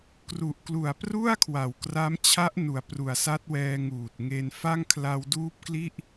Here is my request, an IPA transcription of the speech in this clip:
k r u˨˩ ʔ k l u˨˩ a̯ p r u˥˩ a̯ kʰ w a˨˩ w k r a˦˥ m t͡ɕʰ a˦˥ ʔ n u˩˦ a̯ p r u˨˩ a̯ s a˦˥ t̚ w ɛː˧ ŋ uː˨˩ t̚ ŋ e˧ n f a˥˩ ŋ kʰ l a˧ w d uː˦˥ p̚ k l i˥˩ ʔ

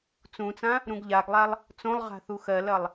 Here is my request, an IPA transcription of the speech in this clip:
t͡s ũ t͡s ã | ɾ ũ ɡ ʎ a ɡ lˠ a lˠ | t͡s õ lˠ ʁ a̤ θ u x ɜ l ɐ lˠ

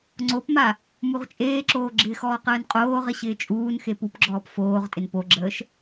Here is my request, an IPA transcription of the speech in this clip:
ŋ͡ǀ o p m a | m u ʁ t͡ʃʼ eː ǁ oː ɡ͡ǁ ɪː x ɔː q əː n qʼ oː ʁ ɪ ɕ ɪː t͡ʃʼ uː n x e p u p ɡ͡ǁ ɔː p f oː ʁ tʼ ɪ n p o ɡ͡ǁ əː ʃ

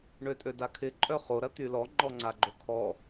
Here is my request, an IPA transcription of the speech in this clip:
ɳ ø tʼ ø d a kʰ ɪ ǃʼ œ χ o ɾ ɐ t̪ y l ɔ ŋ͡ǃ ɔ ŋ͡ǀ a ɡ͡ǃ o kʰ ɔ

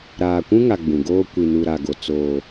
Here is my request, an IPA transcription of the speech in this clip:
ɾ aː˨ kʷ ũ˦ ŋ a˨ ɡ͡b ũ˨ ɡ oː˦ kʷ i˨ n u˨ ɾ a˨ ɡ o˨ t͡s oː˦

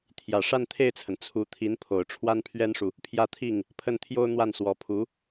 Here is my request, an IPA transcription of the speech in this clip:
t̪ʰ j ä˨˩ ʂ a˥˧ n t̪ʰ e˥˩ ɪ̯ t͡sʰ ə˩ n t͡sʰ u˧˥ t̪ʰ i˧˥ n pʰ o˨˩ ʊ̯ ʈ͡ʂʰ w a˥ n pʰ ɥ ɛ˥ n ʂ u˨ | pʰ j ä˥˧ t̪ʰ i˥˩ ŋ | pʰ ə˥˩ n t̪ʰ j o˥ ʊ̯ n̪ w a˥˩ n s w ɔ˧˥ pʰ u˧˥

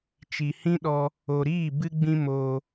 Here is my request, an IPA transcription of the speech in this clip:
t͡ʃ i˨ h ĩ˦ ɗ ɔ˧ | o˨ ɾ iː˦˨ b ɨ˦ ɡ͡b ĩ˦ m oː˧

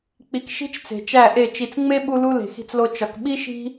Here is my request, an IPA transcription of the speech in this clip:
k͡p i˨ k ʃ i̤˦ t͡ʃ t͡s e̤˨ t͡ʃ æ˦˨ ʔ e˦˨ t͡ʃ i˨ t͡s ŋ͡m e˦ ɓ u˦ l u˦ l e̤˨ x i̤˦ t͡s l o˦ t͡ʃ ɒ˨ k ɓ i˦ ʃ i̤˦

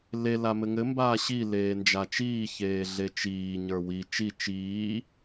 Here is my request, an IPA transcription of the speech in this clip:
l e l a m ɘ ŋ ɘ m b aː ɕ i l eː n d͡ʒ a t͡ʃ iː ç eː ɮ e t͡ʃ iː ɲ ə˞ w i t͡ʃ i t͡ʃ iː

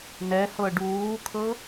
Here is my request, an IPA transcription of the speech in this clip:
n ɛ h ɤ ɖ uː kʰ ɤ

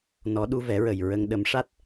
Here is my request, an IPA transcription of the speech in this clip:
n ɔ˨˩˦ ɗ u˧ v ɛ˨˩˦ ɹ ə˨˩ j ɹ ə˧ ŋ ɗ ə˨˩˦ m ʂ a˦˥ t̚

